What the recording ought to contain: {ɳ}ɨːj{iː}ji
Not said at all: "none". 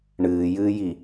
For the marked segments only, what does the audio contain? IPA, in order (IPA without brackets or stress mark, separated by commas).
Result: ɳ, ɨː